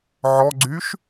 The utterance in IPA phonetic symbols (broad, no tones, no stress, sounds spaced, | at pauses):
ʕ ɔ ɡ͡ǀ y ʃ